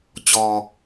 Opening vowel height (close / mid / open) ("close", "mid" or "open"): mid